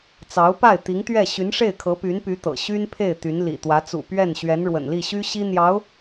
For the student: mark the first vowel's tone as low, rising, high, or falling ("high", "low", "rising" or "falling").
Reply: rising